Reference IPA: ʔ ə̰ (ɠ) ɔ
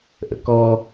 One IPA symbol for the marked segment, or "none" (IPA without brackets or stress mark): k